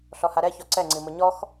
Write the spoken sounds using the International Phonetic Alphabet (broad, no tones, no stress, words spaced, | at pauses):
ɬɔhaɾɛ çɔǀɛ ŋ͡ǀimʊɲɔx